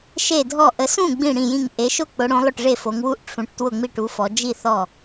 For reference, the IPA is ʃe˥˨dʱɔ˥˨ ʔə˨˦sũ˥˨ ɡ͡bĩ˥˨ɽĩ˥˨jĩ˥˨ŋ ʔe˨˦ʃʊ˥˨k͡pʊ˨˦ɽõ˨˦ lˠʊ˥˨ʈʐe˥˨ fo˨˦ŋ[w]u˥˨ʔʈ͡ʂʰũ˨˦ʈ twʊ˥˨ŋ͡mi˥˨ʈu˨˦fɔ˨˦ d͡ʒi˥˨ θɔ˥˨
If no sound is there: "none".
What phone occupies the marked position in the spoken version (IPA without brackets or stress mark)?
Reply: w